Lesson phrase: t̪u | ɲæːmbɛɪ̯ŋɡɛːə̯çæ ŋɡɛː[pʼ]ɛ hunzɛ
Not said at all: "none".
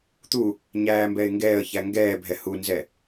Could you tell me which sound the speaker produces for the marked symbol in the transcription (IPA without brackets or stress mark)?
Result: bʱ